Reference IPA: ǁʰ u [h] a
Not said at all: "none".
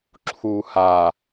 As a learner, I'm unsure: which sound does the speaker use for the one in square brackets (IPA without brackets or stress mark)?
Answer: h